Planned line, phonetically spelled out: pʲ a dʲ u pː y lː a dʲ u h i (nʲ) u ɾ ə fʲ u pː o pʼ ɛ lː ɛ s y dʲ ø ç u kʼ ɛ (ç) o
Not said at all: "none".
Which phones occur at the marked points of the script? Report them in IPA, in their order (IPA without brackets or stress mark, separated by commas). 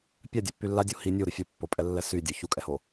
nʲ, h